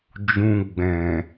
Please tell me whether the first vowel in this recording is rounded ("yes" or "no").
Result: yes